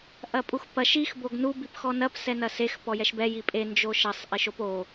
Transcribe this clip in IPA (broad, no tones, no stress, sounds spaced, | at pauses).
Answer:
ʔ ɐ pʼ u x p ɐ ʃ i x b o ɡ n u b i p x ɔ n ɐ p s ɛ n ɐ s e x p ɔ j ɛ ʃ b ɛ j i pʼ e n d͡ʒ o ʃ ɐ sˤ ʔ i ʃ o p o